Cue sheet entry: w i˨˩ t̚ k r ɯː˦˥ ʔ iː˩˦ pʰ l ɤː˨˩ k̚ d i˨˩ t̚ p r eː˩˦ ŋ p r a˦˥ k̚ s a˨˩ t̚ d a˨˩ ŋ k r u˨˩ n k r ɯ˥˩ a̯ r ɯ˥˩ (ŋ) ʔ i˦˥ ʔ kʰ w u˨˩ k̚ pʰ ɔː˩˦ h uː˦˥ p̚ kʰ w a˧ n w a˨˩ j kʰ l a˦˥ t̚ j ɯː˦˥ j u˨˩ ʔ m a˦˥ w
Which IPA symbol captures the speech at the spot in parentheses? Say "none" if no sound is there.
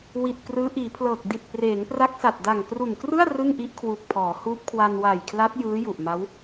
ŋ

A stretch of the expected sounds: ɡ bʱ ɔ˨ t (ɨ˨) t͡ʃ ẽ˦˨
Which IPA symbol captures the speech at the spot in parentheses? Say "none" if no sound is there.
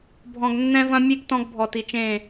i˨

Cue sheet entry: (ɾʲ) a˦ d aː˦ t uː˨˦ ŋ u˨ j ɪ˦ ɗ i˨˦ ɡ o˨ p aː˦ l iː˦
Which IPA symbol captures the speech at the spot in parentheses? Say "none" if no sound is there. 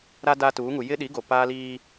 ɾ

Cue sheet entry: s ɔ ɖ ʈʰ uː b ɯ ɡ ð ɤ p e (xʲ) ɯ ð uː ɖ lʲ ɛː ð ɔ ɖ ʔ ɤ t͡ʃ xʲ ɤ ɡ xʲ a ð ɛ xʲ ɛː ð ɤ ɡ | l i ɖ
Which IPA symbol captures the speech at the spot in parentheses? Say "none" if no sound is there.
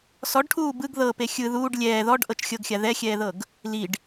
xʲ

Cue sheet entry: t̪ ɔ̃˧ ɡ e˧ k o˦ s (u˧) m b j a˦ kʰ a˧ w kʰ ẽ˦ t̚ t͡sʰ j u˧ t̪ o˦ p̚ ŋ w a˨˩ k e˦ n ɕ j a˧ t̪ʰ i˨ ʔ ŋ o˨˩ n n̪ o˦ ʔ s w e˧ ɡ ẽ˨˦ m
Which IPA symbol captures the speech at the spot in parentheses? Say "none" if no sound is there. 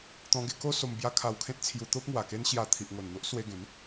o˧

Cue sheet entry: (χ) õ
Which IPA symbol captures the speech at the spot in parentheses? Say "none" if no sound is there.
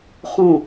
χ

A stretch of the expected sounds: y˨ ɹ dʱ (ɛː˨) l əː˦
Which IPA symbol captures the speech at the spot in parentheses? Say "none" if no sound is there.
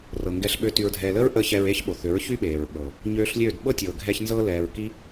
ɛː˨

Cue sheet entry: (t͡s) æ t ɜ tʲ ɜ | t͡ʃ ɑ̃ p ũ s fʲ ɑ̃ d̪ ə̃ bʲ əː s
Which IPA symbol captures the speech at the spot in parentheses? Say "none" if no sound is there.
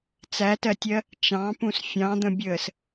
t͡s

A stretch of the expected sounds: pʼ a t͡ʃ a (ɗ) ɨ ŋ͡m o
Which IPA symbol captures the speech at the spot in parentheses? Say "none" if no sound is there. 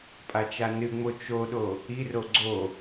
n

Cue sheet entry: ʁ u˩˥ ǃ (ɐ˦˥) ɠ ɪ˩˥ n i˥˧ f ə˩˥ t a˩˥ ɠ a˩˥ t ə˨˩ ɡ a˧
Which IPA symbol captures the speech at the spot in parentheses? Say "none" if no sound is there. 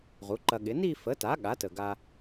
ɐ˧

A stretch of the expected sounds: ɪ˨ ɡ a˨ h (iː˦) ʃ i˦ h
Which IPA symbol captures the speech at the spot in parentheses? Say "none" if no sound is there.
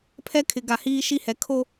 iː˦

